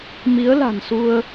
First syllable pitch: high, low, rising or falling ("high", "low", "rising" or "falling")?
rising